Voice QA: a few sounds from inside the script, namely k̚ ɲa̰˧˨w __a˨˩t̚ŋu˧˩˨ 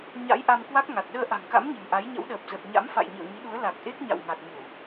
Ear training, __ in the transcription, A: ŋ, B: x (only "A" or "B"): A